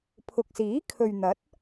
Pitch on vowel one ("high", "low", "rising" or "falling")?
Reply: low